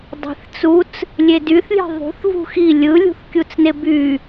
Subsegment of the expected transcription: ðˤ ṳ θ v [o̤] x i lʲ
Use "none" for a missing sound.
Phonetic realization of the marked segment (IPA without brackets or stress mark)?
ṳ